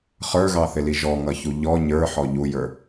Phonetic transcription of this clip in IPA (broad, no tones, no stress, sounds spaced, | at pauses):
χ ə˞ ɣ ɑ θ ɪ l i ʒ ɔ ŋ ʌ ç u ʎ ɔ ɲ ə˞ ħ ɔ ʎ u j ə˞